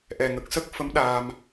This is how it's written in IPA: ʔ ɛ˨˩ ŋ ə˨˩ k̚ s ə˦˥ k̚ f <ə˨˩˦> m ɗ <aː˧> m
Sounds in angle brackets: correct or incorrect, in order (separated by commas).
incorrect, correct